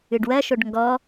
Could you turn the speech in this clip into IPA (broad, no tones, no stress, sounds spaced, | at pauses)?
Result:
ɨ ɖ w ɜ ʃ o ɖ ŋ ɡ ɔ